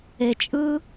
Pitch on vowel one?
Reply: low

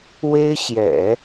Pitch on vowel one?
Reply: high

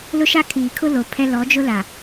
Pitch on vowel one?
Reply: high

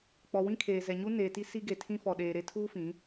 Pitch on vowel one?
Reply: low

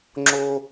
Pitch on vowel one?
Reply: high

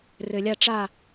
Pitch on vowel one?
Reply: low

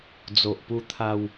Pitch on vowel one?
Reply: low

